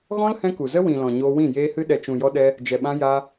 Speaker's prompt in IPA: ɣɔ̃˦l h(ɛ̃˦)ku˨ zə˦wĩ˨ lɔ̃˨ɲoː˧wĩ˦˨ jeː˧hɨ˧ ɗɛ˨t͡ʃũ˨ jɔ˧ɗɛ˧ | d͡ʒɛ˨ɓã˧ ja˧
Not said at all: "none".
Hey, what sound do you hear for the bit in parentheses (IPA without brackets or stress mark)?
ɛ̃˦